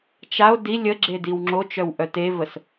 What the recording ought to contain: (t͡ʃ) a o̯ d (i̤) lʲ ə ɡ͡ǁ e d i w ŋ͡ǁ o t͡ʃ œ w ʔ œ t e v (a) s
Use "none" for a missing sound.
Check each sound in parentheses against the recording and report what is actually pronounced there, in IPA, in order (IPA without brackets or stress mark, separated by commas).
t͡ʃ, i, ə